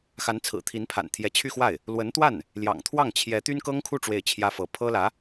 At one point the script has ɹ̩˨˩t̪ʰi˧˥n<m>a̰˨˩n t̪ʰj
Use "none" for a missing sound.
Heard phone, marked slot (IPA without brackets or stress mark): pʰ